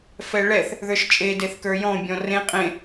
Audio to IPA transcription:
fɛɭɛθ | ðə˞ʃt͡ʃʼe deθkə˞jɔ̃ bʲɔ̃rẽ qʼẽ

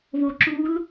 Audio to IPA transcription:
βoǁul

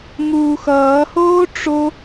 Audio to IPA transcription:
ŋuːxʌːhoː ʈ͡ʂo

